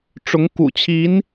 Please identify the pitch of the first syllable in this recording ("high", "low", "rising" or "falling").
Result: rising